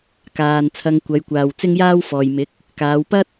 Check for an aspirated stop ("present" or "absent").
present